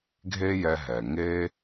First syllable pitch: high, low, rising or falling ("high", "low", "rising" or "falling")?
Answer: high